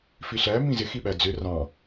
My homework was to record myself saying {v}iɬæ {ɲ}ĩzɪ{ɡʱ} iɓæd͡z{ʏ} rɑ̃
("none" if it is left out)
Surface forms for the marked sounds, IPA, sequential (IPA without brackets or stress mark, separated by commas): f, m, x, ʏ